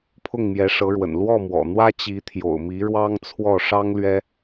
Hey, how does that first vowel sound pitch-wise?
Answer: falling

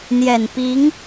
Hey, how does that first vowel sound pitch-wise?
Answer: low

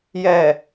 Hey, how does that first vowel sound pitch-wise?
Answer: low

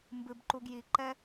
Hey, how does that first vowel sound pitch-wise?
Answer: low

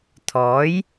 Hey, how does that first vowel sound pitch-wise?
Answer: rising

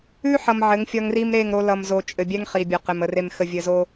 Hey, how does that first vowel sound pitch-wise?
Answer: high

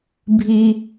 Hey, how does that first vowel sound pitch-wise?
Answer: high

